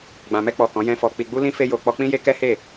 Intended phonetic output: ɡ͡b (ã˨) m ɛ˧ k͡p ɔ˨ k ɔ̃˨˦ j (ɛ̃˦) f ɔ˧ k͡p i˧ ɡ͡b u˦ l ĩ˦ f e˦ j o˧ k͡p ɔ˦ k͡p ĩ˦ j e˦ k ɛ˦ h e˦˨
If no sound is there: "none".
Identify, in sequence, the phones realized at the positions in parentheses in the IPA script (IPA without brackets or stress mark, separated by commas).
ã˨, ɛ̃˦